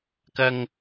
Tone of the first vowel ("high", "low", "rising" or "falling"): high